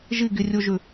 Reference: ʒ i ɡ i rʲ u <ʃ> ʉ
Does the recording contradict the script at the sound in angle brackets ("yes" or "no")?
yes